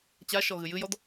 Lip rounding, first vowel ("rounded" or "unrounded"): unrounded